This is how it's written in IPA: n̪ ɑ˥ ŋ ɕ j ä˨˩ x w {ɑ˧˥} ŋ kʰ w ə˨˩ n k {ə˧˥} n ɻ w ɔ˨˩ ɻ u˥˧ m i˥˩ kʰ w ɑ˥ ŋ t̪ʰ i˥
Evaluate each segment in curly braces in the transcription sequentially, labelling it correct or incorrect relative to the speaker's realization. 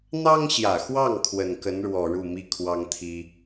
incorrect: ɑ˥˩, correct

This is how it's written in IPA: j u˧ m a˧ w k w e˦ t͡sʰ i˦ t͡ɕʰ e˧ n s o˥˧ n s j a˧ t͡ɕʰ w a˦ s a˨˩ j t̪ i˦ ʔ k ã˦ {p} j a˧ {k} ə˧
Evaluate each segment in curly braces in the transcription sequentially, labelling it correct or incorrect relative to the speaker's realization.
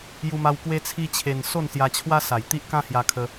incorrect: h, incorrect: kʰ

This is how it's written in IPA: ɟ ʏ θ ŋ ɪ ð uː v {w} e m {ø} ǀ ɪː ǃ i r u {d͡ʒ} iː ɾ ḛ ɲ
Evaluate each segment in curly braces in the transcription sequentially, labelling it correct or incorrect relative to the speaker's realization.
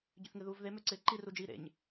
incorrect: ð, correct, correct

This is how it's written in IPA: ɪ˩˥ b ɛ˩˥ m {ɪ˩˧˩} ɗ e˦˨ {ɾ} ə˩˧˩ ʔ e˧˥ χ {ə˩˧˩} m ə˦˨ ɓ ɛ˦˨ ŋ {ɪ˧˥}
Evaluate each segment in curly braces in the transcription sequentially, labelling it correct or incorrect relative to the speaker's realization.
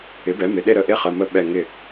correct, correct, correct, incorrect: ɪ˦˨

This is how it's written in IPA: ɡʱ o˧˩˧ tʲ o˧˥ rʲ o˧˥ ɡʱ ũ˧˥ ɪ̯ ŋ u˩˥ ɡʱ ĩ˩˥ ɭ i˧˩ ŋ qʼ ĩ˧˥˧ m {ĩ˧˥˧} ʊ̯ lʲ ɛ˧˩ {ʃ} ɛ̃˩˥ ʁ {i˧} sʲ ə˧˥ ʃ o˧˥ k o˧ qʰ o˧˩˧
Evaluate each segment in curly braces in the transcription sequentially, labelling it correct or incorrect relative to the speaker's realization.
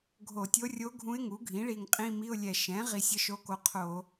incorrect: i˧˥˧, correct, correct

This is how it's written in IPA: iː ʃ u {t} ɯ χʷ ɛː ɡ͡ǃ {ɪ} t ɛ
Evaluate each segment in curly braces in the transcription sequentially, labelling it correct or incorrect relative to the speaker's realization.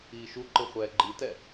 incorrect: ǃ, incorrect: i

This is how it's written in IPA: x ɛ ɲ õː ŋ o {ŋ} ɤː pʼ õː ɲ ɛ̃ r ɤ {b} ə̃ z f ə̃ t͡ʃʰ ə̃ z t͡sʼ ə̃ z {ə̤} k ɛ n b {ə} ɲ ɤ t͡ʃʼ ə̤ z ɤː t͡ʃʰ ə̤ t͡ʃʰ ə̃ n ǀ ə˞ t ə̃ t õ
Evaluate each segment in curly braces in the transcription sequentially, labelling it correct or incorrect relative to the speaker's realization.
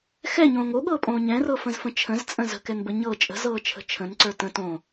incorrect: ɠ, incorrect: f, correct, correct

